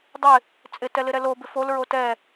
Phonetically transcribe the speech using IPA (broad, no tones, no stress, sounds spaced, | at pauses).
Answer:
dˤ ɪ | t͡sʼ ɪ t ɛ l ɪ ɾ ɛ l o b ɪ f o l ɹ o t ɛ